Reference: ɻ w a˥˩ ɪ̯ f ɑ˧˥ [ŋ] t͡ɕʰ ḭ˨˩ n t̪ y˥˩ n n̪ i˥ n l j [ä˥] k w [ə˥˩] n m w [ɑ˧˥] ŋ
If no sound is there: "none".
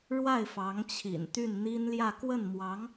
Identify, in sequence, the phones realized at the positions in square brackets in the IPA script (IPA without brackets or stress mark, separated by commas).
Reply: ŋ, ä˥˧, ə˥˩, ɑ˧˥